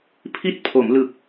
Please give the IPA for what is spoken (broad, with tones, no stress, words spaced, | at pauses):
pʰi˦˥t̚pʰo˩˦mlɯ˨˩k̚